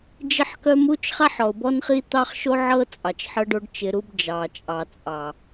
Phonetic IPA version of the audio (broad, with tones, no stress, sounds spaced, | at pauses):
d͡ʒ ɪ˦ ħ k œ˦ m u˦ t͡ʃ χ a˦ ħ ɔ˨ ʊ̯ b ɔ˦ n χ i˦ t̪ ɑ˦ χ ʃ o˦ ʕ ɤ˦ t͡sʼ ɑ˨ t͡ʃ ħ ɤ˦ ɖ o˦ ɖ t͡ʃ ɪ˦ ɾ u˦ b d͡ʒ ɑ˨ t͡ʃʼ ɑ˨ t͡sʼ ɑ˨